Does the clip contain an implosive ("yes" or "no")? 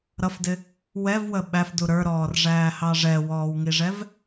yes